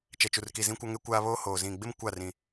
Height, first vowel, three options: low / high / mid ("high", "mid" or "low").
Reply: mid